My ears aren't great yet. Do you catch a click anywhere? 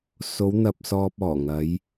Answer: no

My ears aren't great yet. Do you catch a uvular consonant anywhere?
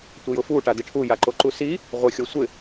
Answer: yes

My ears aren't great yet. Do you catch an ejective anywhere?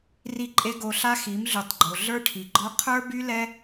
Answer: yes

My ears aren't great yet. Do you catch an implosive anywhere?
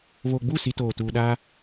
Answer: yes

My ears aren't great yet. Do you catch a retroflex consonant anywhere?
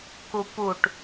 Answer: yes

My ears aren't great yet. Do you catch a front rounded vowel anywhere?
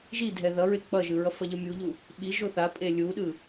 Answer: no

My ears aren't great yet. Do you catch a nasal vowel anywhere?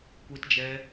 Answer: no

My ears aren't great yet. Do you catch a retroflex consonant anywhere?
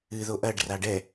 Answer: yes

